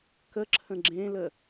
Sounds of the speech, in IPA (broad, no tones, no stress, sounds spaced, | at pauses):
k ə ǁʰ ə̃ ɡ͡ǁ ẽ l ə